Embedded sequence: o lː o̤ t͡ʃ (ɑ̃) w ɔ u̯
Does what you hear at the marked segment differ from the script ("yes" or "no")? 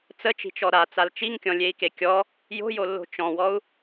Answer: yes